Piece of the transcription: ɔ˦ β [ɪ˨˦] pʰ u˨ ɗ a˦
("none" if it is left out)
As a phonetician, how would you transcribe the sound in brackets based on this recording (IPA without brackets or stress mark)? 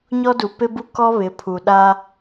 ɪ˨˦